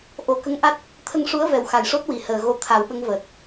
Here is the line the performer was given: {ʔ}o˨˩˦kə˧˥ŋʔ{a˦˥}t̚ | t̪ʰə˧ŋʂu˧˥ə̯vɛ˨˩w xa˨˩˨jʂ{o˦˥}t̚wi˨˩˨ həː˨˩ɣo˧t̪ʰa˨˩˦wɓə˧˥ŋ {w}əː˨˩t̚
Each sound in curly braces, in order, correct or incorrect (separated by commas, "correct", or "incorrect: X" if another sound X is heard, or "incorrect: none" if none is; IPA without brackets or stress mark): correct, correct, correct, incorrect: v